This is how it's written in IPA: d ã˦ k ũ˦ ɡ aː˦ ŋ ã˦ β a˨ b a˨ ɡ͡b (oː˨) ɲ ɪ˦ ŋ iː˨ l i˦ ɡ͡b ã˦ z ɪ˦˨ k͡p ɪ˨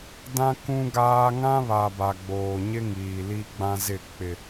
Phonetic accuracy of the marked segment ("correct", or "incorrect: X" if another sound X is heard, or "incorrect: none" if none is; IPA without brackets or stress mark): correct